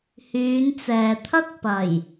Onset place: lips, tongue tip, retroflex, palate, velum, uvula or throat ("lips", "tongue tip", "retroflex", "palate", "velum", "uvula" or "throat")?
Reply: throat